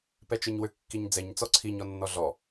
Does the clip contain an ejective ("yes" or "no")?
no